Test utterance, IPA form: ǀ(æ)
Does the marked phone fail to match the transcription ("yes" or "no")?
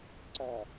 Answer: no